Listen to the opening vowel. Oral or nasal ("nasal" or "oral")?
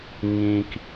nasal